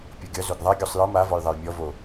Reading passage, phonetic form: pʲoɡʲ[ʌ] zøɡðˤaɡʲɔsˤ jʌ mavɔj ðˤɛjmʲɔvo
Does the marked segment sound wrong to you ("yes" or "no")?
no